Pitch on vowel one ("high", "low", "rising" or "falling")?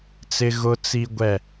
high